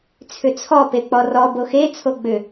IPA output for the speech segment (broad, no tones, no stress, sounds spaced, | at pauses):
t͡sʰ ʏ t͡sʰ ɔ p e k͡p ɔ r ɔ b o x e t͡sʰ o ɡ͡b ʏ